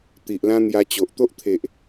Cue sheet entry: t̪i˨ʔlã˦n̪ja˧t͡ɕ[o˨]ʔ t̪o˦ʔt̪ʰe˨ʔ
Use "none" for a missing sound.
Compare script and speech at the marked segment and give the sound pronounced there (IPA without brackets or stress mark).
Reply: o˨